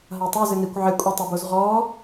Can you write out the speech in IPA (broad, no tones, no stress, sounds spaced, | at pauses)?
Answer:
ɦ a tˤ u z ɪ n i kʷ ʕ ɪ kʷʼ ɪ tˤ i b o z ʁ ɔ